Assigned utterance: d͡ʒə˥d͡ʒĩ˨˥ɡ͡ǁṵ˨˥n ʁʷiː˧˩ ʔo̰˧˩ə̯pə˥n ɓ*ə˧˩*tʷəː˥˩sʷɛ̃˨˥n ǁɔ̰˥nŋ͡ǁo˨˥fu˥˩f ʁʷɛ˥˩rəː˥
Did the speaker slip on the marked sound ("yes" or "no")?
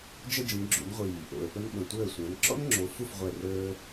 yes